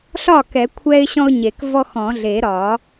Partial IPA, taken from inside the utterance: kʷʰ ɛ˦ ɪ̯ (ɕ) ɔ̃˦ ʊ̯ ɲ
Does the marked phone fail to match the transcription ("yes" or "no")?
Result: no